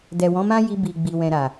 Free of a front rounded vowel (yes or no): yes